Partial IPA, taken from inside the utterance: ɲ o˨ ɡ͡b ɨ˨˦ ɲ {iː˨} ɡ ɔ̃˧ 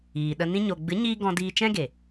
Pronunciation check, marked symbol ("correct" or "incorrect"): incorrect